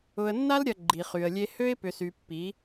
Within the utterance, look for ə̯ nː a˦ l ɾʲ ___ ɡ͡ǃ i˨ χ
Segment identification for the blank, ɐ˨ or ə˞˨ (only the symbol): ɐ˨